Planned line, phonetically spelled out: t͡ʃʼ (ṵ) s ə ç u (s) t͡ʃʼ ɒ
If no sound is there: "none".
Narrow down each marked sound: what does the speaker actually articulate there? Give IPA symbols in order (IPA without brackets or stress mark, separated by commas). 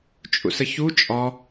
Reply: ṵ, none